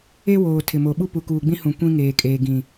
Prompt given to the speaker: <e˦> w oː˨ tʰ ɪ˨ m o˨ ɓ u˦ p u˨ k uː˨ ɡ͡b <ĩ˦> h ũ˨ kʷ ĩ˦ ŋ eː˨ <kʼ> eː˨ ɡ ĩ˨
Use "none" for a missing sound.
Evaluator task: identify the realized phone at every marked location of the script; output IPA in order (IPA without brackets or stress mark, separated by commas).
e˦, ĩ˦, kʼ